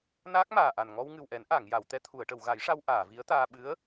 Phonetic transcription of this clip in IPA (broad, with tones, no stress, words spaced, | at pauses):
naː˦˥k̚maː˨˩ʔa˨˩n ŋɔ˧wŋɨ˨˩wʔɛ˨˩˦n ʔa˨˩˨ŋja˨˩˨w t̪ɛ˧t̪ʰu˨˩˨ə̯ ʈə˨˩˨wɣa˨˩˦jʂa˧w ʔaː˨˩˨vi˧˥ə̯t̪aː˧ ɓɨ˧˥ə̯